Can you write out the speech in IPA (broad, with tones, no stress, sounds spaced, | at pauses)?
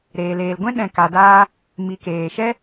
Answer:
ɾ eː˨ l eː˨ l ɡʷ ɛ̃˦ ɗ ɛ̃˨ k a˨ d aː˧ | m i˨ k eː˨ ʃ ɛ˦